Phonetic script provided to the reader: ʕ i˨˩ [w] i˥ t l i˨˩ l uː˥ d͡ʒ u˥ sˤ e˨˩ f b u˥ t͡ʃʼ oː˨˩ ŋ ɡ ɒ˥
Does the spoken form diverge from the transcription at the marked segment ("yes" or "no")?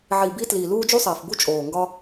yes